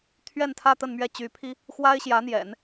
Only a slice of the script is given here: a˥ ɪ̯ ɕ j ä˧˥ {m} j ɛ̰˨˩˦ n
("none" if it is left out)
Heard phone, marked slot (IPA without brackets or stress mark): n̪